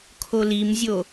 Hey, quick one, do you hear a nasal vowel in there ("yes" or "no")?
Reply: no